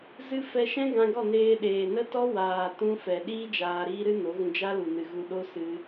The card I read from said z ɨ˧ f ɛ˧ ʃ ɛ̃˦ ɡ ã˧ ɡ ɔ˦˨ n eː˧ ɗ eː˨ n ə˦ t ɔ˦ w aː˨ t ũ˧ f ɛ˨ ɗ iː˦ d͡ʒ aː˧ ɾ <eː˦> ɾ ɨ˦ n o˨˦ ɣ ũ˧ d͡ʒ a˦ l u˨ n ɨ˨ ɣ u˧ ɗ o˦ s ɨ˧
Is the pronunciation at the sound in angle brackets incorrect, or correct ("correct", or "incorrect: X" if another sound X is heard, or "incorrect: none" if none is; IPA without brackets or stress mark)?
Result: incorrect: iː˦